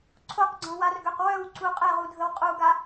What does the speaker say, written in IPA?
ǀʰoqɡ͡ǀɔ̃warɡøq wœwǀu qʼɛʁudʱəw qʼuɡa

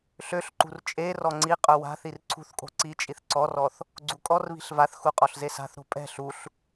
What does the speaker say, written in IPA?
ɬøɬǃṳr t͡ʃʼe rɔŋ͡ǀiqʼœ wa̤θir ǀʰṳθkʼo̤ ǀit͡ʃʼiθ ǀɔrɔθ | ɡ͡ǀukʼɔrβi̤ɬ vaθxu qʼɔɬzesa̤θɾo̤ pʼɛ̤ ɬuɬ

